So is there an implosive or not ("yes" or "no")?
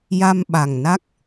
yes